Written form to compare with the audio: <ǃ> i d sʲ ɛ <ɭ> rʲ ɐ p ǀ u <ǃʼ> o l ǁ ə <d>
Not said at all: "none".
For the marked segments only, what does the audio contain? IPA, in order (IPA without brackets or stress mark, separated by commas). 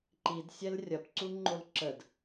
ǃ, l, ŋ͡ǃ, d